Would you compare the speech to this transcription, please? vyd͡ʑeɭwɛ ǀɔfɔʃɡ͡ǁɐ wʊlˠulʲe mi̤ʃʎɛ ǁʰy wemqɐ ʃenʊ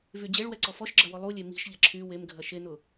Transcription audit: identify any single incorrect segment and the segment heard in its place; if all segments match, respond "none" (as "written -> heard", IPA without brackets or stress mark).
q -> ɡʱ